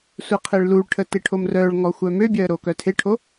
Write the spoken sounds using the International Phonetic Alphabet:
sʷeqʰeɭluɭʈʰə teʈʰomrœɭŋɔ xʷœmøbʲœə̯ ɾokœtʰeʈʰo

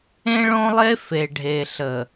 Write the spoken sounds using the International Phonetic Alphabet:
ẽ˦ɭõ˦lˠe˦ fe˨ɖʱe˨ɬə˨

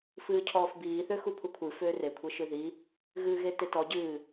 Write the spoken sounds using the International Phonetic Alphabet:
fɨːcʰɔːfbiːθø xupʰukʷʰɨ føːrekʷʰe ʃɨði | ɣɨːɣetetɔ ɟɨː

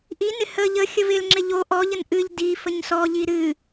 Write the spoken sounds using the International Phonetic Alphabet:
ʔinɪ hə ʎəxʲəv ɪlŋ͡ǁɪ ʎo ʔɔʎən ʔɨʎ di fəɲsɔʎi ɾɨ

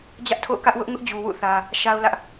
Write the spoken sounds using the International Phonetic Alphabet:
d͡ʑä˦ʔtʰo̰˦˨ʊ̯kä˦ʔ wʊ˦ʔ ŋʊ˦ʔd͡ʑu˨wṵ˦˨ θä˦ | ʃa˦ʊ̯lä˦ʔ

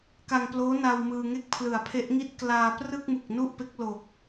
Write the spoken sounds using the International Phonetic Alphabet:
ka˧ŋploː˦˥na˧w mɯː˧ ŋe˥˩k̚pʰlɯ˨˩a̯pʰe˦˥ʔŋi˥˩t̚ klaː˧ prɯ˥˩k̚mu˨˩k̚ nu˥˩ʔpe˦˥k̚lo˨˩k̚

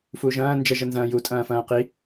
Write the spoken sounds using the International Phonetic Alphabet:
fuʒɐ̃ː nd͡ʒəʒə nzɐ̃ːju tʼɐ̃ːfɐ̃ːqi

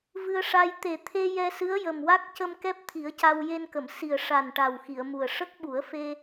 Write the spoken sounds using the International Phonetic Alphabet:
vɨ˧ə̯ʂa˧j t̪e˨˩t̪ʰe˧ jɛ˧sɨ˧˥ə̯jə˨˩mwa˦˥k̚ cə˧m kɛ˦˥p̚t̪ʰi˨˩˦ə̯ca˧w je˧nkə˨˩˨msi˨˩ə̯ ʂa˨˩n ʈa˨˩wxi˨˩˨ə̯mu˨˩ə̯ ʂə˦˥k̚ɓu˨˩˦ə̯ fe˧

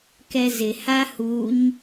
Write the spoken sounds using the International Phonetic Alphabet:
kɛzɪ hahuɲ

